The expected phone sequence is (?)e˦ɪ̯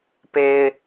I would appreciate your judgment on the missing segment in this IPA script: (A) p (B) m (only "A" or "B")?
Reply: A